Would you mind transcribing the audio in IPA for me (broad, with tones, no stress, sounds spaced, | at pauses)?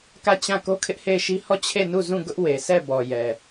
k ä˦˨ t͡ɕ ã˦˨ k o˦ kʰ ɪ˦ ʔ h e˦˨ ɪ̯ ʃ i˦ h ɔ˦˨ t͡ɕʰ e˦˨ n u˦˨ z ũ˦˨ ɡ ʊ˦ ʔ w e˨ sʰ ɛ˦˨ b ɔ˨ j ɛ˨